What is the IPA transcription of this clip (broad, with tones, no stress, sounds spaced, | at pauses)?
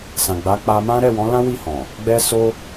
s ã˨ ɡ͡b a˨˦ k͡p a˧ m ã˦ ɾ ɛ˦˨ w ɔ̃˨˦ l ã˦ w i˦˨ h ɔ̃˨ | ɡ͡b ɛ˦ s o˦